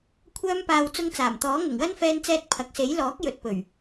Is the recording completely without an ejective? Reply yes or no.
yes